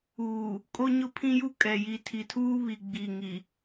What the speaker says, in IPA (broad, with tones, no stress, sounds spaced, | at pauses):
uː˨ | kʼ o˦ ɲ ʊ˦ pʰ ĩ˦ j u˦ kʼ ɛ˨ j i˨ tʰ i˨ tʰ uː˦ β i˨ ɡ͡b i˨ ŋ i˨